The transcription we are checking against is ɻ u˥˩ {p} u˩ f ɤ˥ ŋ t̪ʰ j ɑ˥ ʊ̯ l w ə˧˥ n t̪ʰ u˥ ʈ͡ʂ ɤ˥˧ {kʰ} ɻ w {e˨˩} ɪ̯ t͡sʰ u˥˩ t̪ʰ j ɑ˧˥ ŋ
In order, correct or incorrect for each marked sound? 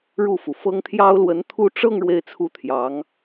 incorrect: f, incorrect: ŋ, incorrect: e˥˧

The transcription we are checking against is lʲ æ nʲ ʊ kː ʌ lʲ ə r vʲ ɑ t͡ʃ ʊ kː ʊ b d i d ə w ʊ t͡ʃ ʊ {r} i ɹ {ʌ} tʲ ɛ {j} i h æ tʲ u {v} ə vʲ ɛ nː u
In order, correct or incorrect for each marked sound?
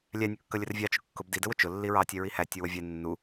incorrect: lː, incorrect: ɑ, incorrect: ɹ, incorrect: w

